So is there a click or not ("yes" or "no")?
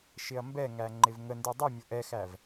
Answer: yes